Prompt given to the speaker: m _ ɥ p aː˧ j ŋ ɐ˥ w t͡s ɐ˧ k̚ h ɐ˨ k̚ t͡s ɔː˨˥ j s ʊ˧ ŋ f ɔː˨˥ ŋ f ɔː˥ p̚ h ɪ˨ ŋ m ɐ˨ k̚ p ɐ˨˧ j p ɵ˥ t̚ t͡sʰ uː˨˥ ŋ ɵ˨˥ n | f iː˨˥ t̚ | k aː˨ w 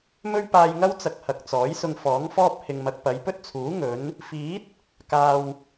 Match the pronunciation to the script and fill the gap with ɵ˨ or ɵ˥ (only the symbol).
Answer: ɵ˥